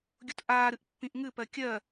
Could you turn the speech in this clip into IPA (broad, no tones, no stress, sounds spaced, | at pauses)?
ɡʲ u t ʔ aː ɾ ɨ ʔ pː ĩ ʔ ŋ ɨ p ɜ kʲ ɜ